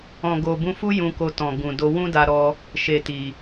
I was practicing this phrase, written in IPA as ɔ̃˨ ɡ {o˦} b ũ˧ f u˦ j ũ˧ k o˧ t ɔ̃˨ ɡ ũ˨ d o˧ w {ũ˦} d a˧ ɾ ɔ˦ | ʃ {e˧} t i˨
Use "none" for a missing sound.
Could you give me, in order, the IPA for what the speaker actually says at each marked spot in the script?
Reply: o˨, ũ˦, e˨

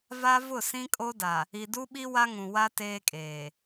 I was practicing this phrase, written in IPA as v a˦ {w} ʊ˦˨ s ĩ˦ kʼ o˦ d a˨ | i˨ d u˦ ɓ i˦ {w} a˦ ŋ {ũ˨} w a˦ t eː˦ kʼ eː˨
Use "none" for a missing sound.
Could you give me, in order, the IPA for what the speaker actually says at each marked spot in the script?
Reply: v, w, ũ˨

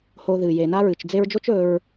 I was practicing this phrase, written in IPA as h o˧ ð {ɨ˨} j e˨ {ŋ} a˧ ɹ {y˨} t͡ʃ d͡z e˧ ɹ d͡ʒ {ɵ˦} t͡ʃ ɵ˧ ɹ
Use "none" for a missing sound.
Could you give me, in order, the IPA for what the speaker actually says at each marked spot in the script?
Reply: ɨ˨, n, ɨ˨, o˦

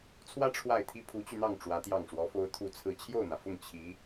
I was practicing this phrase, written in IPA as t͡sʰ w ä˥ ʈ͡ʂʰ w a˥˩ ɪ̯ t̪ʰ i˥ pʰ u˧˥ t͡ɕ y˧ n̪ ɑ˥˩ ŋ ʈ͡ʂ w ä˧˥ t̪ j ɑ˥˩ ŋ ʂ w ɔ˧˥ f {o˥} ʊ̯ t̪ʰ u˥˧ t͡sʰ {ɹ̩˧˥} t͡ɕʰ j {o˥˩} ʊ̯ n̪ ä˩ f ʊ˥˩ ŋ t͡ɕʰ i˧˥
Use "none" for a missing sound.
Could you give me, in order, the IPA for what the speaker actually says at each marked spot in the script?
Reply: o˥, ɹ̩˥˧, o˥˩

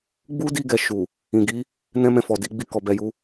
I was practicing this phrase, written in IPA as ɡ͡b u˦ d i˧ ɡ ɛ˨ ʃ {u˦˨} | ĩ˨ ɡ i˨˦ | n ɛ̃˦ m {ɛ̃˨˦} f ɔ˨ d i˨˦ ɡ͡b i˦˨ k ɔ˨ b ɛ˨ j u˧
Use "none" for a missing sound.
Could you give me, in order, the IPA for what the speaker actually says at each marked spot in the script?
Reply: u˨, ɛ̃˧

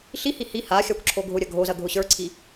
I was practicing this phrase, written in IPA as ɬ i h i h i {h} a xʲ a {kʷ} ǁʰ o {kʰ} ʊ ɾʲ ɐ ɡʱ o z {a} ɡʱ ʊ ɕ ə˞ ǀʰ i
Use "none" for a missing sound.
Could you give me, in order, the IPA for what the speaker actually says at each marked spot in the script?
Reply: h, kʷ, ɡʱ, ɐ

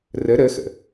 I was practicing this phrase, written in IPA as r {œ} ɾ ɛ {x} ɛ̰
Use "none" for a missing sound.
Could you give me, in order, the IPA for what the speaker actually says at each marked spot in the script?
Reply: ɛ, x

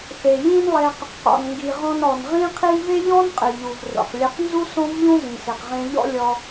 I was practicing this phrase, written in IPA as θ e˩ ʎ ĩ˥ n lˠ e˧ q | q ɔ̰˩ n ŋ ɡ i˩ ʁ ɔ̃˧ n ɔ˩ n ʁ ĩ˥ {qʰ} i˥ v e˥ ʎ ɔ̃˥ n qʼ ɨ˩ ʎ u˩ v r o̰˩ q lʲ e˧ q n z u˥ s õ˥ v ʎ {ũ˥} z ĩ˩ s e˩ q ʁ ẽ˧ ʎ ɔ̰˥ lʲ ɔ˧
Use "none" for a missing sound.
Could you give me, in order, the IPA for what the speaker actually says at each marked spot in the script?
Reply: qʰ, ũ˥

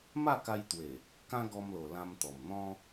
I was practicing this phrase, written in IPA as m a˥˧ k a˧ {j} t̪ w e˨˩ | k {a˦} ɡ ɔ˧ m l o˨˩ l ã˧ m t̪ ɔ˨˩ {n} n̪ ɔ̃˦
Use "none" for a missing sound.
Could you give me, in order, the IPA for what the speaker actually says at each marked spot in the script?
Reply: j, ã˦, m

